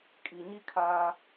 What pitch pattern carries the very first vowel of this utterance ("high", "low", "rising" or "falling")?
low